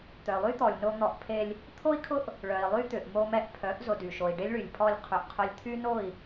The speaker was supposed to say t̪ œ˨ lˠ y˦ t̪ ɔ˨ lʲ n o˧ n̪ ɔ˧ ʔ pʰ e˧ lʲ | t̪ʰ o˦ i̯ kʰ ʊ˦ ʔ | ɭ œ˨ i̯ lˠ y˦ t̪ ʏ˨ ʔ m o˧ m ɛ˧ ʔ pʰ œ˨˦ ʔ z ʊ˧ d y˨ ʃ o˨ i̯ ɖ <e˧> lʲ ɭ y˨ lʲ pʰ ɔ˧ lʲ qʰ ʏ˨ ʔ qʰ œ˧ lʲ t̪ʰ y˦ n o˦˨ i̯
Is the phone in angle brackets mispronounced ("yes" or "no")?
yes